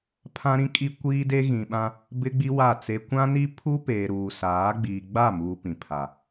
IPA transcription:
pʰ ã˦ ɾ ĩ˦ kʼ i˦ kʷ iː˦ d e˦ ɣ ĩ˨ ɓ ã˦ | b ɪ˦ ɡ͡b i˦ w a˦˨ t͡s e˦ kʷ ã˦ n i˦ pʰ u˦ p eː˨ ɾ uː˨ s aː˨˦ ɡ͡b iː˨ ɡ͡b a˦˨ m uː˨ p ĩ˨ pʰ a˨

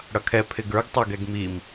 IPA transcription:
ɽ ʌ kʰ ɛ pʰ ɪ ɡ ə˞ ɡ tˤ ə˞ ɡ ɛ ɡ m i m

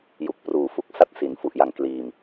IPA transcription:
j u˨˩ k̚ p r uː˨˩ f u˦˥ k̚ s a˦˥ t̚ s i˩˦ n f u˨˩ ʔ j a˨˩ ŋ k l iː˨˩ m

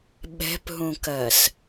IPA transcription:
ɓ ɛ̤ p ɦ ũ k ɜ s

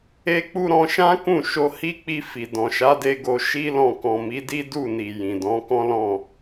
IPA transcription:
e˦ k͡p u˦ ɾ ɔ̃˧ ʃ ã˦ k ũ˦˨ ʃ o˧ h i˦ k͡p i˧ f i˨ d ɔ̃˨ ʃ a˨˦ d e˧ ɡ o˧ ʃ i˦ l ɔ̃˦˨ k ɔ̃˨ m i˨˦ d i˦ d u˦˨ n i˨ j ĩ˨ d ɔ̃˨˦ k ɔ̃˦ l ɔ̃˦˨

